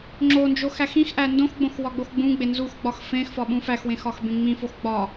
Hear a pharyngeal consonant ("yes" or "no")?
no